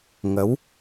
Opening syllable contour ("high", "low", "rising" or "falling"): rising